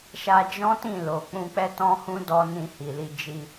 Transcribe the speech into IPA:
ʃa˧d͡ʒɔ̃˦tĩ˦˨ lo˨k͡pũ˧k͡pɛ˦ tɔ̃˦hũ˦ dɔ˧nĩ˧ hi˨li˧ d͡ʒi˧

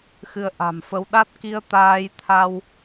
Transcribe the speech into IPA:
xɨ˧ə̯ʔa̤˨˩mfə˧w ɗa˦˥t̚ki˧ə̯ t̪aː˧jt̪ʰa˧w

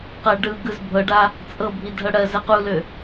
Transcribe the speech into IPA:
qɜɖɯɡɯz bʱɤɖa | t͡sʼɤbʱi dʱɤɽɜzɜ qulø

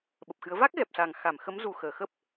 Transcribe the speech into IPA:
ɓə˨˩p̚xɨ˨˦ə̯ va˦˥k̚ ɣɛ˨˩p̚sa˨˩ŋxa˧˩m xə˨˦mzu˨˩ xəː˧˩xə˦˥p̚

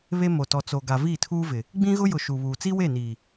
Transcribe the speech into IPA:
βe˦ mo˨tɔ˨ t͡so˨ɡa˨ viː˦˨tʰuː˦vɪ˨ | ɡ͡bĩ˦ɣʊ˦jʊ˨ ʃu˨βuː˨ t͡si˦we˦˨niː˨

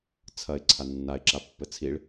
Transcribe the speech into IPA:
t͡sʰɐɪ̯ ǀʰanːaɪ̯ ǁapːɘt͡sʰiɭ

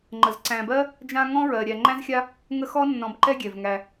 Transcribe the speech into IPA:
ŋ͡ǃə˩zǀæ̃˨bɜ˥ | d͡ʒã˦ ŋɔ̃˥ɹɜ˩ɾʲæ˨ ŋ͡ǃæ̃˥zxʲa˥ | ŋə˦xɔ˥nːɔ̃˨b ǃɛ˦ɡʲɛ˩v ŋæ˨

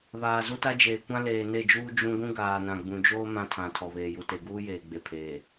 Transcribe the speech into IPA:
βaː˨zu˦ta˦d͡ʒeː˨ kʷã˦leː˨ ne˦˨d͡ʒuː˦ d͡ʒũ˦ ɡʷũ˦ɡaː˨nã˨ ɡ͡bũ˨d͡ʒoː˦ mã˦tʰã˨ tʰɔ˨βeː˨ju˨ te˨ɡuː˦jeː˨ ɡ͡be˨pʰeː˨

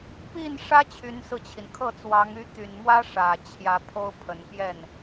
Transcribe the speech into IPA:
pi˥˩nʂä˥ t͡ɕʰy˧˥nsɹ̩˧t͡ɕʰi˩n kʰɤ˥˩t͡swɑ˧˥ŋ y˧˥t̪y˨˩nmwä˥ ʂä˨˩ t͡ɕʰjä˧˥pʰo˥ʊ̯pʰə˨˩n pjɛ˥˩n

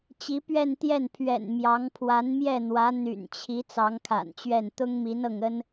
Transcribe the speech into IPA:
t͡ɕi˧˥pɥɛ˥˧nt̪jɛ˥˩n pʰɥɛ̰˨˩n mjɑ˧˥ŋ pʰwa˧˥nmjɛ˥˩n̪wä˧˥ n̪y̰˨˩nt͡ɕʰi˧˥ t͡sɑ˧˥ŋkʰa̰˨˩nt͡ɕɥɛ˥˩n t̪ʊ˥ŋmi˧˥n ɤ˥˩ŋə˥n

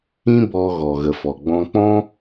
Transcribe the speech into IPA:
ĩ˦bɔ˧ ɣɔ˨ɣə˨fɔ˨ ɡ͡bɔ̃˧k͡pɔ̃˦

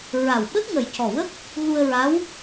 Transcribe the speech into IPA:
ɹa˨˩w ɓə˦˥k̚ŋə˨˩jcɔ˨˩wə˦˥k̚ | ɣu˧ə̯ɹaː˧˥w

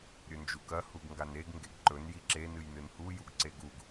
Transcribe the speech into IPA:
ɾʲɵnd͡ʒukɐ huɡŋɡaneɡ ŋɡeɡǃɵn jiǁe nɨjnɨnhu juɡǀeɡuɡ

